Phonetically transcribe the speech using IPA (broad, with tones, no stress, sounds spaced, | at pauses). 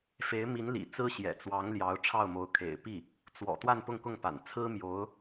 f e˧˥ ɪ̯ m i˧˥ n l ḭ˨˩ t͡s ɹ̩˥ ɕ j ɛ̰˨˩ t͡s w ɑ˧˥ ŋ l j ɑ˧˥ ʊ̯ ʈ͡ʂʰ ɑ˥˩ ʊ̯ m o˧˥ ʊ̯ kʰ ḛ˨˩ ɪ̯ p i˥˩ | t͡s w ɔ̰˨˩ t̪ w a˥˧ n p ʊ˥˧ ŋ k ʊ˥˩ ŋ p a̰˨˩ n t͡sʰ ɹ̩˥ m j o˧˥ ʊ̯